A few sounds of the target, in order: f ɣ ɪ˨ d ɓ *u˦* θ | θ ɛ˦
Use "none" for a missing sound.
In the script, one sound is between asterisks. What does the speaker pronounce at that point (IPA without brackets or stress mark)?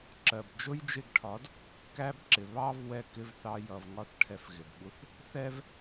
u˦